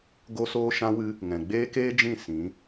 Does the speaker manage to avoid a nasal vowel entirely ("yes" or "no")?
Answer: no